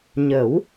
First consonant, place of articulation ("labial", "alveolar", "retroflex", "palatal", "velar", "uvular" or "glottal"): palatal